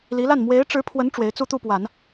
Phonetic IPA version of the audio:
li˧˥la˥˩n mwe˧˥ɪ̯ʈ͡ʂɻ̩˧˥pʰwə˧˥n ʈ͡ʂwe˧˥ɪ̯t͡su˥˧t̪u˥˩pwa˨˩˦n

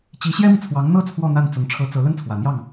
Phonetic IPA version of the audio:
t͡ɕi˧˥ɕjɛ˥mi˨t͡sʰwɑ˧˥ŋ n̪ɤ˥˧ t͡sʰwɔ˥˧ n̪a˥˩nt͡sʊ˧˥ŋ ʈ͡ʂʰɤ˧˥ t͡sɤ˧˥ lə˥nt͡sʰwä˨˩n̪jɑ˥˩ŋ

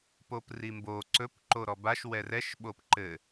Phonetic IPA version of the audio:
poprimbo ǀɵp ǃoɾɔbaʃ wɛrɛʃ ɓopǃɘ

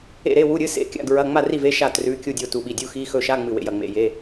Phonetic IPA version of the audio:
ḛ˥˨ɾe˧˥˧wu˧˥˧ɾʲɨ˧˥˧ sḛ˧˥˧kʲa̰˧˥˧ɡɹɐ˧˥˧ ŋ͡ma˥˨ri˥˨ve˧˥˧ ʃa˥˨ trʉ˧˥˧kʲu˥˨dʲo˥˨ tu˥˨ɓi˥˨ dʲu˧˥˧xi˧˥˧xɵ˥˨ ʃa˧˥˧ ŋ͡mɨ˥˨wḛ˥˨jɐ˥˨ŋ͡mḛ˥˨ je˧˥˧

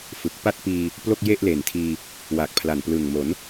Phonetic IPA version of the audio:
fɯ˨˩k̚ pa˥˩t̚piː˧ | plo˥˩k̚je˥˩ʔle˨˩ntʰiː˧ | wa˨˩k̚pʰla˨˩nplɯ˨˩ŋmo˩˦n

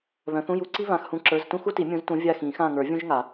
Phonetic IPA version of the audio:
βœ̃˨˦θũ˧˥˧ju˦˨ǀi˥ βã˧˥˧xhũ˦˨ǁə˞˧˥˧z tũ˥xu˥ti˨˩˦ mʲũ˨˦z tũ˨˦ vʲa˦˨xĩ˨˩˦xã˦˨ŋə˞˨˩˦ vʲũ˥ʒŋa˨˩˦

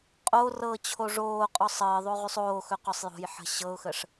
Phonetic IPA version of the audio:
qʼo rɤt͡ɕʰo ʐoːqʼɔ sˤəːðˤo ʁysˤoːxɵ qɔsˤjo̤jħə̤ ɕɤʊ̯xəʂ

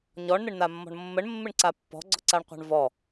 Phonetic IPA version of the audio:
ɲɔɳn̪ɪɳn̪amːɔ̤ɳ mːəɳmːɪɳǀa pːɔ̤ɡ͡ǀɔǀaɳqʷa̤ɳ vɔ

